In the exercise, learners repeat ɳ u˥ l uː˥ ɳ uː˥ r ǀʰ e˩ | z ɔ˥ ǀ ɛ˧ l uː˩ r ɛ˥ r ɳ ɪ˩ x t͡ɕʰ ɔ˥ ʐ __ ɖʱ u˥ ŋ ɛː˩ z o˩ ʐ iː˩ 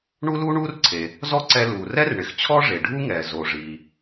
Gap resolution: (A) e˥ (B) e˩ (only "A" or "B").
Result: B